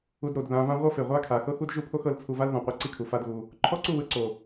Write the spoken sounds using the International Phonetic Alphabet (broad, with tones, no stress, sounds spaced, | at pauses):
u˧ d ɾ o˨ d ð ã˧ v ã˦ ʁʷ ɤ˦ f e˨ ʁʷ a˦ kʰ a˨ x ɤ˦ x u˦ d ʒ u˦ pʰ o˦ x ɤ˧ l t͡sʰ u˧ v a˦ l ð ɔ̃˨ qʷ e˦ ǀ i˦ kʰ u˨ f a˦ d ɣ u˧ | ǃʰ ɔ˦ ǀ u˦˨ w ɯ˧ ǀ o˨